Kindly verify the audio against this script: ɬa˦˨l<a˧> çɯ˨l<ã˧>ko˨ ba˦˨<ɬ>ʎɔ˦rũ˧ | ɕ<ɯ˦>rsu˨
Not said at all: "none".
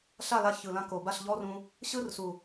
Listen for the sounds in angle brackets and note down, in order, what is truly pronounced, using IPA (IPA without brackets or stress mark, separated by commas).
a˧, ã˧, ɬ, ɯ˦